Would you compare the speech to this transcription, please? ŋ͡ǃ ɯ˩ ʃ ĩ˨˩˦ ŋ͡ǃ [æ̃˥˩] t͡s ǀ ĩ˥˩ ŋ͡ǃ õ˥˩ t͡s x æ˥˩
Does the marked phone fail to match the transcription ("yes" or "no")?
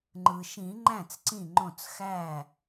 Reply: no